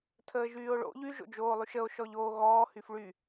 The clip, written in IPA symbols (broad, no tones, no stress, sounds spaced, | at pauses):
tʰ əː ʒ yː o̯ ɭ o̰ ʎ y ʒ o̰ d͡ʒ oː lˠ y ʃ ə o̯ ʃ ɔ ʎ oː ɣ ɔː h y f ɭ y